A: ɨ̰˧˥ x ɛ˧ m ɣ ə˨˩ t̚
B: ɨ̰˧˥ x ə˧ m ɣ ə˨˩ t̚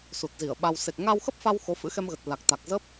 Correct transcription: A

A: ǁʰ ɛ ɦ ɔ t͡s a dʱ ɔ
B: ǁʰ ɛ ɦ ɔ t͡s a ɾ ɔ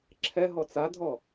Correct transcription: A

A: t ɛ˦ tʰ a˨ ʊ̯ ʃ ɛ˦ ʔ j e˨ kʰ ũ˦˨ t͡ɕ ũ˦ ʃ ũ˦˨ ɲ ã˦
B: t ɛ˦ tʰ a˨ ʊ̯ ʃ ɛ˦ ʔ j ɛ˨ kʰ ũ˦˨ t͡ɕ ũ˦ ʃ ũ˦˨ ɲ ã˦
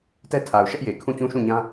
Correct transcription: A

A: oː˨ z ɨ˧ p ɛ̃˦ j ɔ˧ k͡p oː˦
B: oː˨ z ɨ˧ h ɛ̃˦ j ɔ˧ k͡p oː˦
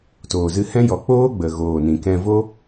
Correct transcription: B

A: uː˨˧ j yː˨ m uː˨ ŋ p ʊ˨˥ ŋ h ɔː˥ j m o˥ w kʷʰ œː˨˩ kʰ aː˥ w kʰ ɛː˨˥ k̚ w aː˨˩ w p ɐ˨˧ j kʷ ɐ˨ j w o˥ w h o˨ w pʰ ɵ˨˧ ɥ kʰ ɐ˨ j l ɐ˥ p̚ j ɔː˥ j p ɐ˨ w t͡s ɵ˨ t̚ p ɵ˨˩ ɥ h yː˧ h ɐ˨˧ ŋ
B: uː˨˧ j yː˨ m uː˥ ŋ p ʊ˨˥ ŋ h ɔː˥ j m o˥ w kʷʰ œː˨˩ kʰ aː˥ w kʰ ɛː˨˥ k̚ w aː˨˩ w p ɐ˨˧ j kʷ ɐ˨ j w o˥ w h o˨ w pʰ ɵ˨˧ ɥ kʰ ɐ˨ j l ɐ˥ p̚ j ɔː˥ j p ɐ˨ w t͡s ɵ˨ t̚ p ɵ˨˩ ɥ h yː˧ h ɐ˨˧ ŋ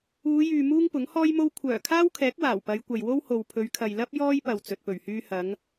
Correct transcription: B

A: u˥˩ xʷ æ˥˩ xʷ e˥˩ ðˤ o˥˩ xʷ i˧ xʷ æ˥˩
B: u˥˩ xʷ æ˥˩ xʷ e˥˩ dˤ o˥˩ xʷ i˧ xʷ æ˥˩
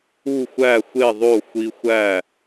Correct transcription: A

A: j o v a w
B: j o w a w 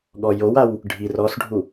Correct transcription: B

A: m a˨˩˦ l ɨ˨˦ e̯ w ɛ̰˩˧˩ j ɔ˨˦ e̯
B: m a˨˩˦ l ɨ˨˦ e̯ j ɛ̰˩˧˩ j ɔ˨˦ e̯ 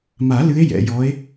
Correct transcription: B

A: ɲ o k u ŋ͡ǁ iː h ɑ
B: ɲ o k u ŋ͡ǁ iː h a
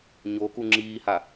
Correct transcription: B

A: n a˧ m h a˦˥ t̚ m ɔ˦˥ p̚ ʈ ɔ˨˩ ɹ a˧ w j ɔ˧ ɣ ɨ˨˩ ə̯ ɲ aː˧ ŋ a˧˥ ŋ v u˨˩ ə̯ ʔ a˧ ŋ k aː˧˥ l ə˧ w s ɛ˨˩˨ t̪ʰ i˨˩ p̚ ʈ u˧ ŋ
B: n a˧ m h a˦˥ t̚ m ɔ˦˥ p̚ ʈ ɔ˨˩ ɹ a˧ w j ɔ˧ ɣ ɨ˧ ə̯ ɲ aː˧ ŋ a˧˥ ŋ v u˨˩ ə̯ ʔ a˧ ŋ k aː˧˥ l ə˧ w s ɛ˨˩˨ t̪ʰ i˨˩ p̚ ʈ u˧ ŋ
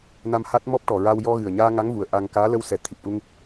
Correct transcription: A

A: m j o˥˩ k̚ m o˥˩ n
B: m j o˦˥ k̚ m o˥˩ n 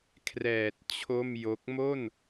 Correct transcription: B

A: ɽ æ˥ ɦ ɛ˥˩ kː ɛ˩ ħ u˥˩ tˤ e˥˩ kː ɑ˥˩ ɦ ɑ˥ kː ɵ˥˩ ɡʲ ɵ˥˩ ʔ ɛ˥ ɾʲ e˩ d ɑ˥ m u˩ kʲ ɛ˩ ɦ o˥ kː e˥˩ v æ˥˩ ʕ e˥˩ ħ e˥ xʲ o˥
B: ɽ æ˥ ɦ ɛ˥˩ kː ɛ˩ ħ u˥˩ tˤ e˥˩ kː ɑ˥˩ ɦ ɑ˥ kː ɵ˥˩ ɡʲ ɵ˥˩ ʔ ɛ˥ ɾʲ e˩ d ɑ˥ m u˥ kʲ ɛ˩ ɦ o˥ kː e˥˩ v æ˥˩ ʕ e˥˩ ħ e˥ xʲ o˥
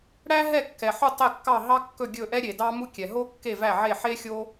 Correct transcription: B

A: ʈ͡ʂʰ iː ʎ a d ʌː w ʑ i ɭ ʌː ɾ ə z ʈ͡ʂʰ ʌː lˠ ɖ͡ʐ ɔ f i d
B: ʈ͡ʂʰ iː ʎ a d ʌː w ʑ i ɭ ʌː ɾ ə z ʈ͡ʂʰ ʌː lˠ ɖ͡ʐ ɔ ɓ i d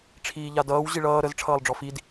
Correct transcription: A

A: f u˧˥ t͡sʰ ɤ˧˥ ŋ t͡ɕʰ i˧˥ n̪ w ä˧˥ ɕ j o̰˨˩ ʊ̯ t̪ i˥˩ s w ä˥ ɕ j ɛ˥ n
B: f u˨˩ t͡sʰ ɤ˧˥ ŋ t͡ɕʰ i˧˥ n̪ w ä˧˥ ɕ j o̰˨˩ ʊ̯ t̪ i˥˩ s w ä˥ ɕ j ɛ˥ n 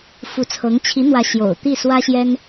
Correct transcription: A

